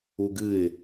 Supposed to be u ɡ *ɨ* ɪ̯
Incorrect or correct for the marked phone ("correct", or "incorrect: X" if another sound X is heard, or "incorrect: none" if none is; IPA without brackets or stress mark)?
correct